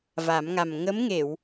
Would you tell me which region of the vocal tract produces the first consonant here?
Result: lips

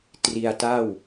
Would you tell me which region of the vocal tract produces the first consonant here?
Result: tongue tip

